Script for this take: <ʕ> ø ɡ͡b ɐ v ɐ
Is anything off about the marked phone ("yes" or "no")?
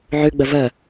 no